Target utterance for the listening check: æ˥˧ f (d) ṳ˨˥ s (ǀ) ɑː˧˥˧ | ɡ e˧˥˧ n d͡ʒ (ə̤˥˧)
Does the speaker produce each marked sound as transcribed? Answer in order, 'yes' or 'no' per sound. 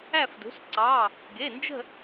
yes, yes, yes

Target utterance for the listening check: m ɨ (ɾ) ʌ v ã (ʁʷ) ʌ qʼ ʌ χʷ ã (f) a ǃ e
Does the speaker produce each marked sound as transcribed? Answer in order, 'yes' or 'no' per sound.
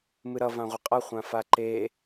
yes, yes, yes

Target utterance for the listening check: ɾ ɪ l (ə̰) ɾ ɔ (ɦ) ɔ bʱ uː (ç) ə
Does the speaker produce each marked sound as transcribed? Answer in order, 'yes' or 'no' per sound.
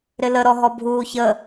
no, yes, yes

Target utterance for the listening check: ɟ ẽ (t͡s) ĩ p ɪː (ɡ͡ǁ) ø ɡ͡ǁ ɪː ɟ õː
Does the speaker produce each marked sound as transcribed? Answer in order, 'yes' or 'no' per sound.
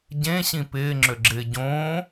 no, no

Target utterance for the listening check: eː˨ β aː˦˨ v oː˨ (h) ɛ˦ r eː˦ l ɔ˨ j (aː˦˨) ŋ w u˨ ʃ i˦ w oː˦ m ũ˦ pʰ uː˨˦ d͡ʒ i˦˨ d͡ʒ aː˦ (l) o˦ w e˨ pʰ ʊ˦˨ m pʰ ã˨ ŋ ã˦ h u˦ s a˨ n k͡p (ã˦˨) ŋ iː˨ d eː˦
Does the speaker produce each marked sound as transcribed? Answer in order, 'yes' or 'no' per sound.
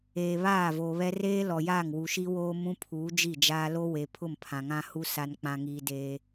no, yes, yes, no

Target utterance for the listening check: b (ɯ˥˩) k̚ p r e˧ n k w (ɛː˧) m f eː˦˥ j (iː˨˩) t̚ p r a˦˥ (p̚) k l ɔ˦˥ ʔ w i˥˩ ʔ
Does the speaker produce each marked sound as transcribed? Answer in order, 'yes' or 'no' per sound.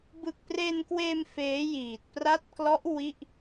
no, no, yes, no

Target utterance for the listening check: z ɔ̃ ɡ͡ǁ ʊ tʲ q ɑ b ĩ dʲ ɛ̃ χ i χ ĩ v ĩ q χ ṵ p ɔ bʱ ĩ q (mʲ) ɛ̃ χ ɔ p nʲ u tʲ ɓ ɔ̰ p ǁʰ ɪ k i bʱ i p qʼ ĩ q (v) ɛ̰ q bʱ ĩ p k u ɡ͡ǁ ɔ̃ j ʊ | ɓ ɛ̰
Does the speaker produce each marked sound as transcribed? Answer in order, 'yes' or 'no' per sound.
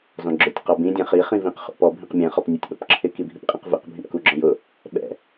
yes, yes

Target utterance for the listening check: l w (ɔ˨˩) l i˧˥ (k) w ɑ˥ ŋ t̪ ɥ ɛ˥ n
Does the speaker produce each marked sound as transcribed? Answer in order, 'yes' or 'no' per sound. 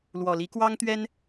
yes, yes

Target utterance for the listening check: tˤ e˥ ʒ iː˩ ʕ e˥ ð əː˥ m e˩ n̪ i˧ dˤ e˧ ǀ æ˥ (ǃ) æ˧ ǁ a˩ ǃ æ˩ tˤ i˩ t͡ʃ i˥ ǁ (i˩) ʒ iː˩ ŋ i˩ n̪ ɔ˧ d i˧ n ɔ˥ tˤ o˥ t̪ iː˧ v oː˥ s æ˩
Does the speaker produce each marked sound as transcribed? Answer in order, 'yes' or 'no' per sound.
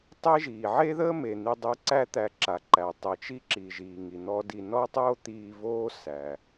no, yes

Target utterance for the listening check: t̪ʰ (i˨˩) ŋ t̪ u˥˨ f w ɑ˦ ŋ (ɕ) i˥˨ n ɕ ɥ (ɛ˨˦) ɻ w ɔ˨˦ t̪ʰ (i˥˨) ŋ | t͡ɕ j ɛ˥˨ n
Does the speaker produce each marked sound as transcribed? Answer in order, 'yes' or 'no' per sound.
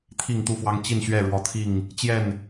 no, no, no, yes

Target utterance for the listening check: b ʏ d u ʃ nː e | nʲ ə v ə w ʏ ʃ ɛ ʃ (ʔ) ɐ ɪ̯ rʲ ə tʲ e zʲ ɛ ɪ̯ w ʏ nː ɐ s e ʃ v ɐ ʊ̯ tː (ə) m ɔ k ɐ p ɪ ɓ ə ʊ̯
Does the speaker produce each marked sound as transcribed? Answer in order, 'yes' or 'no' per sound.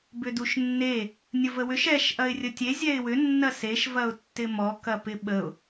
yes, no

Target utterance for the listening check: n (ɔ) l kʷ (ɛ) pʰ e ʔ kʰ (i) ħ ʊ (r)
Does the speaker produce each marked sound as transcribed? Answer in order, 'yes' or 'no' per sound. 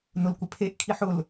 no, no, yes, no

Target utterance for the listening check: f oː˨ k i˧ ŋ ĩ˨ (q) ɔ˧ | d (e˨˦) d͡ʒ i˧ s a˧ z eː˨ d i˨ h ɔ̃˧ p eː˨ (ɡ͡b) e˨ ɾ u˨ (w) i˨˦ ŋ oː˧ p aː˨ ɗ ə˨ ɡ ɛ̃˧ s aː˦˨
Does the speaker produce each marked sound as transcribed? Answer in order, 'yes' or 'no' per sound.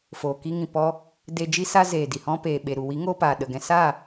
no, no, no, yes

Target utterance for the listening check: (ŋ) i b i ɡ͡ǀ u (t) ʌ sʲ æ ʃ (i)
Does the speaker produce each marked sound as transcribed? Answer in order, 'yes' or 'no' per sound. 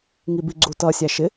yes, yes, no

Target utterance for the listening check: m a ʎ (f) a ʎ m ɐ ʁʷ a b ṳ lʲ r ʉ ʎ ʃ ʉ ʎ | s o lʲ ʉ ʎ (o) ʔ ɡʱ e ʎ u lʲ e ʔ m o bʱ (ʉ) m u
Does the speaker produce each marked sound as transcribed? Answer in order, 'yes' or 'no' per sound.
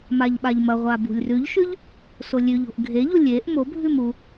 no, no, yes

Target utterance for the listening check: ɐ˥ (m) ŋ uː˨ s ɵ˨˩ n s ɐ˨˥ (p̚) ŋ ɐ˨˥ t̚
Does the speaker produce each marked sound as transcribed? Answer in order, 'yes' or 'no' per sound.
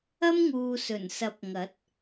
yes, yes

